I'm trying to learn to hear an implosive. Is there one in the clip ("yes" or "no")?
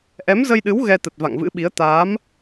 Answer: yes